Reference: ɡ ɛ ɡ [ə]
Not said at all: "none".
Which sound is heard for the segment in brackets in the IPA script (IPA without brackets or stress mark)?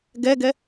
ɛ